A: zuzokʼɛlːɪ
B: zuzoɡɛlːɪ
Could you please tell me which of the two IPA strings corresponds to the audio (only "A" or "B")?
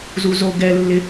B